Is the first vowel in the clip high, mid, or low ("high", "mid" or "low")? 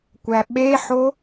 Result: low